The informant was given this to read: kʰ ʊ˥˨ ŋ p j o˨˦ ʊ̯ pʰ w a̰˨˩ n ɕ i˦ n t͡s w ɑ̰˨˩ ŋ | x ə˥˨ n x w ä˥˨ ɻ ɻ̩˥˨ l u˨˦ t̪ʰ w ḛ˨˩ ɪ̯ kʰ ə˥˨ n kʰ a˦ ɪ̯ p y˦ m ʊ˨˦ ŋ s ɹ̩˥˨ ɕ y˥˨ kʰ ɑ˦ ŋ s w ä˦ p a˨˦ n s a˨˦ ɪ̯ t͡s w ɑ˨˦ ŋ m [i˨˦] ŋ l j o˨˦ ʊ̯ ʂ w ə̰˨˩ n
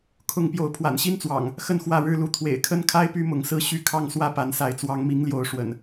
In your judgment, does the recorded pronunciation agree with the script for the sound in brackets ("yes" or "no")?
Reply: yes